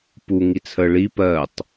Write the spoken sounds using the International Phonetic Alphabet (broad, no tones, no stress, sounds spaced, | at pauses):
p u ŋ i t͡sʰ ə ɭ i p ɜ tˤ